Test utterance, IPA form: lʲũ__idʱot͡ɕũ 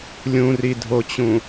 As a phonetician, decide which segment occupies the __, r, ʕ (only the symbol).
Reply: r